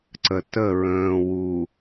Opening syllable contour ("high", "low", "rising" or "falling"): low